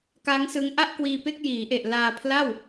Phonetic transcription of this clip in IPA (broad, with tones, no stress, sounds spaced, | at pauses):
k a˦˥ ŋ s ɯ˦˥ ŋ ʔ a˥˩ ʔ k w iː˧ p e˥˩ k̚ j iː˩˦ ʔ e˨˩ ʔ l aː˧ pʰ l a˥˩ w